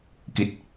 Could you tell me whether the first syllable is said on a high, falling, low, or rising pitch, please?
low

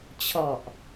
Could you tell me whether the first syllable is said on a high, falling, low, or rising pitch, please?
low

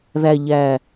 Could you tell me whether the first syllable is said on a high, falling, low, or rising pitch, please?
low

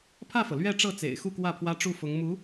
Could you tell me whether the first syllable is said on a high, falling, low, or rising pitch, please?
falling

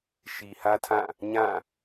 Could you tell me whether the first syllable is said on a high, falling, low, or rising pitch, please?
low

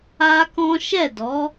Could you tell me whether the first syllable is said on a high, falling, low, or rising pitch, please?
high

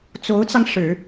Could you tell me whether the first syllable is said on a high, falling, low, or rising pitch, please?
rising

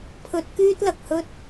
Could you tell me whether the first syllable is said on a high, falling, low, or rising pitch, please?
high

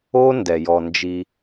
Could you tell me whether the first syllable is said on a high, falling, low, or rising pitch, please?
high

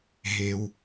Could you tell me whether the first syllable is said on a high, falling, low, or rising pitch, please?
low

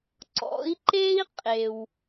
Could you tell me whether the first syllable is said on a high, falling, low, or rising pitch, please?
rising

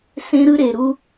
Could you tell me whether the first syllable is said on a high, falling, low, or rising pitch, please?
high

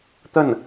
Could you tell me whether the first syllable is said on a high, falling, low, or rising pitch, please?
falling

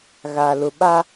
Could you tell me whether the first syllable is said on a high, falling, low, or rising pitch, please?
low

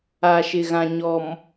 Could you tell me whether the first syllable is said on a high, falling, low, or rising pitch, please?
low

